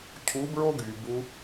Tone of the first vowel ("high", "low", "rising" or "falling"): rising